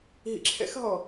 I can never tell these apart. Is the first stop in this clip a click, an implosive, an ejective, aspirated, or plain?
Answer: click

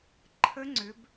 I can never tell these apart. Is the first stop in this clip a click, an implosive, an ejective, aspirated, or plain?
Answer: click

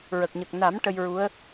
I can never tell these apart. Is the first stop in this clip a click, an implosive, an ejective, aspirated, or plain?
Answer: plain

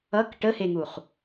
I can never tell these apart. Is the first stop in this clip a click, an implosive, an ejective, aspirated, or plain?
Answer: plain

